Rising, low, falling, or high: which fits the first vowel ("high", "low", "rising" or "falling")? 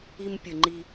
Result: high